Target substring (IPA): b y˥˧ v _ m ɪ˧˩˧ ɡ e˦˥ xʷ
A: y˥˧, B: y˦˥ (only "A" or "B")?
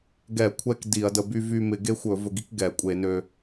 A